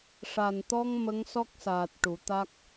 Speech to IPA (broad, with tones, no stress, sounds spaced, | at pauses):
ʂ a˨˩ n t̪ ɔ˧ ŋ m ə˧˥ ŋ s ɔ˦˥ k̚ s aː˨˩ t̚ ʈ u˨˩˦ t̪ a˦˥ k̚